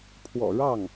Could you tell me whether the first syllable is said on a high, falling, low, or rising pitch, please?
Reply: low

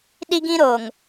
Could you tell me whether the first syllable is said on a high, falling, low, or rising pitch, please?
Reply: high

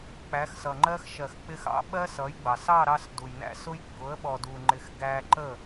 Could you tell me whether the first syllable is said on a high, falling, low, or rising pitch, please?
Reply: rising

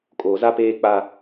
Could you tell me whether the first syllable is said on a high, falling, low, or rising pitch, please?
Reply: low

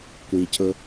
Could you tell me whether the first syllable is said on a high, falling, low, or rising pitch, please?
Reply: low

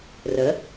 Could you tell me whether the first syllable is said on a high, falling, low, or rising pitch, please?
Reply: rising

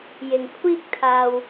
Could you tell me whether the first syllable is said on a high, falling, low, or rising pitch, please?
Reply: low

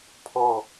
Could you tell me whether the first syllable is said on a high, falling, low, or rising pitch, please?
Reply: falling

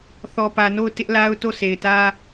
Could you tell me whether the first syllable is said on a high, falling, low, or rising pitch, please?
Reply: low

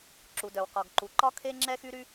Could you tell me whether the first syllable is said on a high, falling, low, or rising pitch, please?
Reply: low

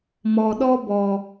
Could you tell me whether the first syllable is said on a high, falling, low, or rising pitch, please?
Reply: low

